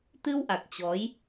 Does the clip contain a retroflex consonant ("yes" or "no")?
no